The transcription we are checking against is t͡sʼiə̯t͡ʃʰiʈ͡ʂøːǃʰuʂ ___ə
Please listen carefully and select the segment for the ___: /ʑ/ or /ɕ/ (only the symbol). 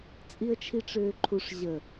ʑ